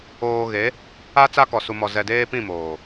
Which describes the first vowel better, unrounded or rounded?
rounded